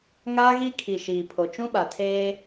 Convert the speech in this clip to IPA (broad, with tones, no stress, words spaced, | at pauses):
ŋaː˦ɣi˦ kʰi˨ʃiː˨pʰo˨ t͡ʃũ˦ɓa˨tʰeː˦